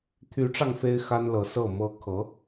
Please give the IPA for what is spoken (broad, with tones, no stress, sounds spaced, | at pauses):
t̪ʰ y˧˥ ʈ͡ʂ ɑ˧ ŋ f e˥ ɪ̯ x a˥ n l ɤ˧˥ s ɤ˥˩ m ɤ˥ kʰ ɤ˧˥